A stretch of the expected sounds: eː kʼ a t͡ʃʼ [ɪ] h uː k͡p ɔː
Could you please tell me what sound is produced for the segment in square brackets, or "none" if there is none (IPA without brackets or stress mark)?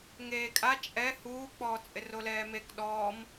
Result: ɛ